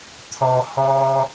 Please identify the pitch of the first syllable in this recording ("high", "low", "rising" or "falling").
low